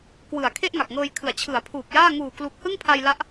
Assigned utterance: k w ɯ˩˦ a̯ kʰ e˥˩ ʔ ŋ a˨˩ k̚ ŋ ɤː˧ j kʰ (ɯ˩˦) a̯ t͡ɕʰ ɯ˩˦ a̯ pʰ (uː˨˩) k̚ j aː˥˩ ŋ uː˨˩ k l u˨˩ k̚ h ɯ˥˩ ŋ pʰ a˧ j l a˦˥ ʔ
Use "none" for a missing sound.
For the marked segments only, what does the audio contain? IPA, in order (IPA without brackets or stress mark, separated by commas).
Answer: ɯ˩˦, uː˨˩